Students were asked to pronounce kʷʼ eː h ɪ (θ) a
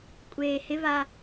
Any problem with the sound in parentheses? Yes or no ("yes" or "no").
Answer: yes